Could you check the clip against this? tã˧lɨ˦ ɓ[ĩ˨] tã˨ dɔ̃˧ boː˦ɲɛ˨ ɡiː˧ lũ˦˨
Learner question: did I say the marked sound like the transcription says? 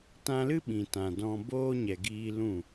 yes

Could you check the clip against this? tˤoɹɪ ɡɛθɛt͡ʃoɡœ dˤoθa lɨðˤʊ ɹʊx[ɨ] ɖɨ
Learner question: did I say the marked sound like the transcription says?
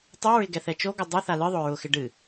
no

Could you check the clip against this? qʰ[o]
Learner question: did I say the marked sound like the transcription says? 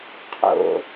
no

